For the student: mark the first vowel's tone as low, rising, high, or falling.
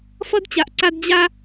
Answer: high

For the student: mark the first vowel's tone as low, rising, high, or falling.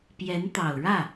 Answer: rising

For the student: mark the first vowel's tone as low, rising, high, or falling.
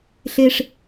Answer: high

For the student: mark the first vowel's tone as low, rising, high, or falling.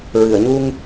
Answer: low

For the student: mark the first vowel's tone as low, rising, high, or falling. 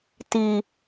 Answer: high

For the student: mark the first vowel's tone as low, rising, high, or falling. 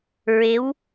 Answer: rising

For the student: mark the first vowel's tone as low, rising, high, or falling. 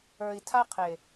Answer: low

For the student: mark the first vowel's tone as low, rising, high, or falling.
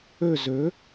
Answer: falling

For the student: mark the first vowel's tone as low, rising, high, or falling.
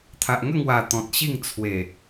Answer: low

